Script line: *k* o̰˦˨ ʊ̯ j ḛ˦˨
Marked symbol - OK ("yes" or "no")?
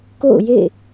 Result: yes